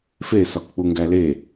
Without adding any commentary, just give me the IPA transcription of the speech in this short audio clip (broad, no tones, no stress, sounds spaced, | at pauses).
f e s ɒ k k͡p u ŋ ɡ æ l e